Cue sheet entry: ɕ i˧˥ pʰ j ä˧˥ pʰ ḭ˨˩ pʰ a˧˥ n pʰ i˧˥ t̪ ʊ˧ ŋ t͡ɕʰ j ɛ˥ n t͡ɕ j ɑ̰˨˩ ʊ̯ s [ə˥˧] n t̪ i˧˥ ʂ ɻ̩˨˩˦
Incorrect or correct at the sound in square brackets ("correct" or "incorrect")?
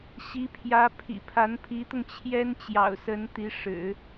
incorrect